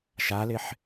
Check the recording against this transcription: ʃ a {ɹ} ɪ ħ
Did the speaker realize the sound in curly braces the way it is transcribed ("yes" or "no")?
no